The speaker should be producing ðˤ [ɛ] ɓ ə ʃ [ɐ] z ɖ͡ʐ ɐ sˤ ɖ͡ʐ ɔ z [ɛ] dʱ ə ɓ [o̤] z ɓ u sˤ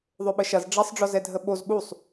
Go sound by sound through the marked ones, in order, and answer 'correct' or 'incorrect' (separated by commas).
incorrect, correct, correct, incorrect